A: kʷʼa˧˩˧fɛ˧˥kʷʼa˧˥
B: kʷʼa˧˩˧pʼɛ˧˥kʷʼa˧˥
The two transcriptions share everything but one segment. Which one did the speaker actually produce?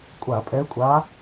B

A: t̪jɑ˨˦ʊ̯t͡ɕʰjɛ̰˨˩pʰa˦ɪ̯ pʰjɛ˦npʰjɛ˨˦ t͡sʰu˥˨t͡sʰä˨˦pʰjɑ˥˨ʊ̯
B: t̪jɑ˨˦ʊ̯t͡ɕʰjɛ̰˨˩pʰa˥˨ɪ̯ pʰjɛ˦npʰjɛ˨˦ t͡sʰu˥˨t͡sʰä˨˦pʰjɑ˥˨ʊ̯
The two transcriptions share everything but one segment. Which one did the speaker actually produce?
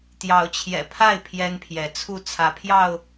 B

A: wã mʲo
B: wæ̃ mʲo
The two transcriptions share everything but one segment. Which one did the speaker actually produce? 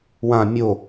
A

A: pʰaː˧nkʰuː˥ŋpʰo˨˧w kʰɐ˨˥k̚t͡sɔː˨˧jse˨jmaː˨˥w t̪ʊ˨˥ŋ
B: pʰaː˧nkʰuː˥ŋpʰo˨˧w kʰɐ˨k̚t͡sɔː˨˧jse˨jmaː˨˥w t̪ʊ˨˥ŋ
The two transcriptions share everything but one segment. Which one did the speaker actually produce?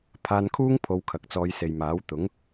B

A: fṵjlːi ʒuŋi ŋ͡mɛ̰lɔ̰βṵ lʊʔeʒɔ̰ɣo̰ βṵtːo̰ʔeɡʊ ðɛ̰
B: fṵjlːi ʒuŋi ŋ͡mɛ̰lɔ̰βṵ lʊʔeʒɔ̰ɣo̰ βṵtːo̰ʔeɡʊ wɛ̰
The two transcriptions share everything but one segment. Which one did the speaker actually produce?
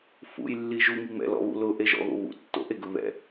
A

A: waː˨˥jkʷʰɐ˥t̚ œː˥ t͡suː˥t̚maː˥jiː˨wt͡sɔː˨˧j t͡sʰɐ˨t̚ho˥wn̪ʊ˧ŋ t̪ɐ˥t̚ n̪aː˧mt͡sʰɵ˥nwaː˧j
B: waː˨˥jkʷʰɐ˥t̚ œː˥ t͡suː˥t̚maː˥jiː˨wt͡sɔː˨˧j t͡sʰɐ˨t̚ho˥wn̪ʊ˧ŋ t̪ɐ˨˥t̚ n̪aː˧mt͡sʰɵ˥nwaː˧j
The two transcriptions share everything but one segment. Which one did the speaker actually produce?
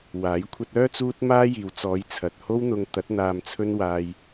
B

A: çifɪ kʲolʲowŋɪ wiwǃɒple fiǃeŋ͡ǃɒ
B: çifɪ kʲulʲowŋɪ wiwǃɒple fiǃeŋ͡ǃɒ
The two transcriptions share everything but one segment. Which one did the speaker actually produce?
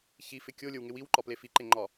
A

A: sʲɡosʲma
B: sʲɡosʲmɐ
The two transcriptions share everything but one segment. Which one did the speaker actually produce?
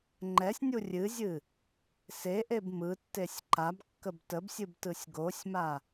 A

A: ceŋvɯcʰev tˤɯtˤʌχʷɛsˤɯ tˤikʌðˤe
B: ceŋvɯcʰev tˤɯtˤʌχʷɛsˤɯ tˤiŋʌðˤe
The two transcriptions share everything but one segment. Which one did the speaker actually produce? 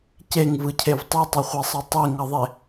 B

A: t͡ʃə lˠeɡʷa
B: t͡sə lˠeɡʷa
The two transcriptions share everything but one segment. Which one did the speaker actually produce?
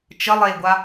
A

